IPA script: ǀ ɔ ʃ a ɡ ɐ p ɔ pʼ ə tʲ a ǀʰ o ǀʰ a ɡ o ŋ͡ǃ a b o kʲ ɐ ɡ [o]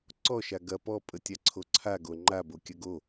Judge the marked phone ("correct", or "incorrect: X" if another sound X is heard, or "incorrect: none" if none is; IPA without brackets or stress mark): correct